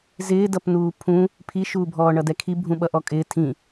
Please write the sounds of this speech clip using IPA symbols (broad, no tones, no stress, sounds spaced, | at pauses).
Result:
z ɪː d ʌ p n uː pʰ ũ | pʰ i ʃ uː bʱ ɔː ɳ ʌ d ɛ kʰ i bʱ ũ ɓ ʌ ʔ ɔ kʼ ɪː tʰ ĩ